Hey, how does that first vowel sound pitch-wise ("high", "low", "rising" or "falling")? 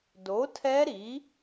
rising